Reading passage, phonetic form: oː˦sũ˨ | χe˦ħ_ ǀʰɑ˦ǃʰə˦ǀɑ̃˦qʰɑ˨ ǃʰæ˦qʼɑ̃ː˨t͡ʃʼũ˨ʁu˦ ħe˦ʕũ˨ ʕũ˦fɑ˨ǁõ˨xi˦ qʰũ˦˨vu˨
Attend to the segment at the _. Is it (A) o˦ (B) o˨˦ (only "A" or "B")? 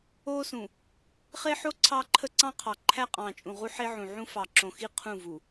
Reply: A